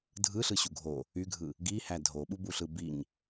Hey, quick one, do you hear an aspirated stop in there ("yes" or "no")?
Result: no